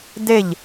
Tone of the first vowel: falling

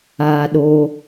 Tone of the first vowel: high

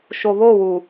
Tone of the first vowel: low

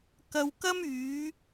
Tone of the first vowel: low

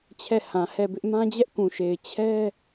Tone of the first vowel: falling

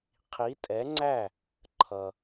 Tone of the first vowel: rising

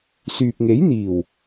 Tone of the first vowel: low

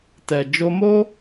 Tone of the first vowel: low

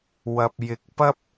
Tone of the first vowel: low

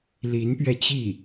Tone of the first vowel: rising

